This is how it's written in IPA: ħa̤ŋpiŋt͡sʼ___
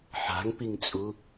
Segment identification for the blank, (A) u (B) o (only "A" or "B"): A